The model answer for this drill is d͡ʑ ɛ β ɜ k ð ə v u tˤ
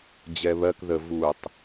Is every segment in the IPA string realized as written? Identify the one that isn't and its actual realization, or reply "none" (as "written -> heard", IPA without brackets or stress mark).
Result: none